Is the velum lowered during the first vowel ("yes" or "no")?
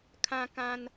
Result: yes